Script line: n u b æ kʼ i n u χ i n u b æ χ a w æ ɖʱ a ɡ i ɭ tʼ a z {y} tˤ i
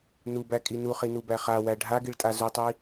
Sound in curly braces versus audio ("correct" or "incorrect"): incorrect